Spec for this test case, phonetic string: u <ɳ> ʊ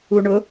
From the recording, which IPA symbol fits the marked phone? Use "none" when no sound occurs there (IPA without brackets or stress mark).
ɳ